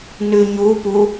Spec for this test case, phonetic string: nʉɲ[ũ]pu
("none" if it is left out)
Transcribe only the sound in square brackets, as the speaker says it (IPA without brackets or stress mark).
u